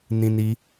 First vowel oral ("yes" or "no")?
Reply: no